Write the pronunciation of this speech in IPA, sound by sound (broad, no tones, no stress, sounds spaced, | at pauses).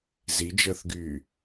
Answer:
z i d͡ʒ əː θ ɡ yː